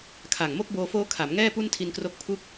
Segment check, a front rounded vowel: absent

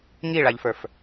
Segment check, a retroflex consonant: present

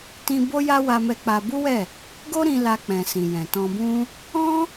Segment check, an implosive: absent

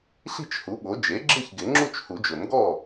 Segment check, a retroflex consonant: absent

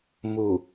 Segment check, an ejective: absent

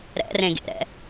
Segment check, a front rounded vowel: absent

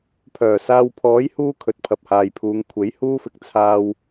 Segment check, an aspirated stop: present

